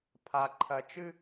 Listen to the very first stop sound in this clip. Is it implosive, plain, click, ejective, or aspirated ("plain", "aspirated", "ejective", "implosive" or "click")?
aspirated